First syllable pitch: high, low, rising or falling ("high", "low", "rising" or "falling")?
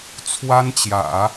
high